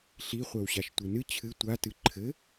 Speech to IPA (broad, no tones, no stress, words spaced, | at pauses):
ɬi χʷɛwɕaʃtʷɨnɨ t͡ɕʰɨ tʷatɨ ǃʰɘ